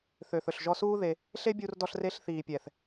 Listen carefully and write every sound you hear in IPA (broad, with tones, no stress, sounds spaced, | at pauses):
θ ø˨ θ ɵ˨ ɬ ʒ ɔ˧ s uː˦ ð e˧ | ɬ e˦ bʲ u˧ r d ɔ˧ ɬ r e˧ ɬ θ iː˨ pʲ ɛ˨ θ